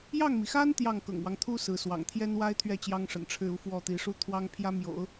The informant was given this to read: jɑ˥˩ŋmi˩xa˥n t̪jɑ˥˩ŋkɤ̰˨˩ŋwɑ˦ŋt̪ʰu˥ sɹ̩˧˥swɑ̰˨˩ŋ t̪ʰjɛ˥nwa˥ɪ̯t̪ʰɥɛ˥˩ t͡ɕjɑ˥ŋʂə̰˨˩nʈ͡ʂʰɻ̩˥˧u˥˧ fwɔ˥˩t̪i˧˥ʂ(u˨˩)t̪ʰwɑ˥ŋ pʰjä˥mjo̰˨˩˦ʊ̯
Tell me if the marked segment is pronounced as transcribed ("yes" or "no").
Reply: no